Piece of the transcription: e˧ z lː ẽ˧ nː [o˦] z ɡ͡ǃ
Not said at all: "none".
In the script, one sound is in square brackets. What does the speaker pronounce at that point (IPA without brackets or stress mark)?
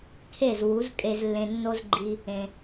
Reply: o˦